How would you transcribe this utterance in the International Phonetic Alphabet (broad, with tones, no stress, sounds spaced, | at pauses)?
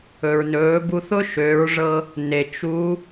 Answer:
ɵ˩ ɹ n ɵː˩˧ b u˧ θ ʊ˥ ʃ ø˩˧ ɹ ʐ ɤ˧ | n e˩ t͡ʃ u˧˥